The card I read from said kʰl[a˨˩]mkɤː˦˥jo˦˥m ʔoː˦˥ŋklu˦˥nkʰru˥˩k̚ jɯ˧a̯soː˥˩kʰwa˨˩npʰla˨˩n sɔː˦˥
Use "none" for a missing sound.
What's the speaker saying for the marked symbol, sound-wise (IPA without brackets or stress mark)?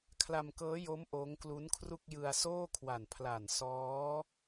a˧